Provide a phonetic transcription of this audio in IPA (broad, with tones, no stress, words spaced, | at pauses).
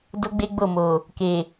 do˦ɡ͡be˦ɡ͡bo˦˨mo˨ | ke˨